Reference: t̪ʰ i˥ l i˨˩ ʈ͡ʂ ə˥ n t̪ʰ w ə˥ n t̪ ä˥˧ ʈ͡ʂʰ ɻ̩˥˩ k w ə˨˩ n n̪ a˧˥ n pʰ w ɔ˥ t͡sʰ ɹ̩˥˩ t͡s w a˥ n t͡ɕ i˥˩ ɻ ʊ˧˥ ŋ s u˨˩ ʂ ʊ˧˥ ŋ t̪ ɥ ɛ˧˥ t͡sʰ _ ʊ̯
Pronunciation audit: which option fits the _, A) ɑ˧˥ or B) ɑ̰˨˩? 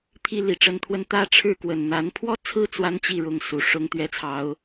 A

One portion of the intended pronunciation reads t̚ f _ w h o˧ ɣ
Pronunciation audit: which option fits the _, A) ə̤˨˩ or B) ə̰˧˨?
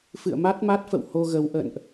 B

